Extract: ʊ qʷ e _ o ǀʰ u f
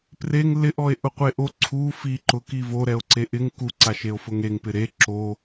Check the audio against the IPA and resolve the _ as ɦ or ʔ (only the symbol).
ʔ